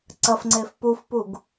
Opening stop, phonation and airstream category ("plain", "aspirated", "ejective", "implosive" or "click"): click